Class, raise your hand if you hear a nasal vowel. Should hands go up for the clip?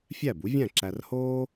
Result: yes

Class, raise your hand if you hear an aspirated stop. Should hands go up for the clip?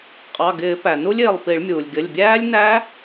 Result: no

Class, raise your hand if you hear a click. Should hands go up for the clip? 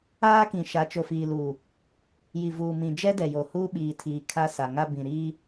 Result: no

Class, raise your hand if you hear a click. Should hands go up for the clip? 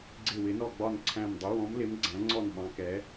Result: yes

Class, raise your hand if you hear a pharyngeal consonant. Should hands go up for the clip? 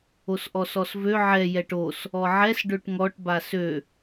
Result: yes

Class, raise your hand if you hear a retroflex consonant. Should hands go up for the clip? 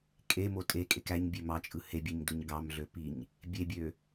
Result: no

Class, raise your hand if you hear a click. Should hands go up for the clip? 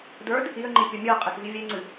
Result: yes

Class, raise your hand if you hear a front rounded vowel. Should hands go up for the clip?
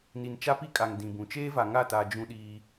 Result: no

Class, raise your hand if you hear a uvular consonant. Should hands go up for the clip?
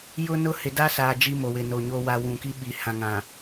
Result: no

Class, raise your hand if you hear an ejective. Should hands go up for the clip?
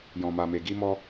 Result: no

